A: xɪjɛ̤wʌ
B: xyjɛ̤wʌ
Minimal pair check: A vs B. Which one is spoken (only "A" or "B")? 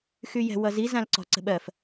B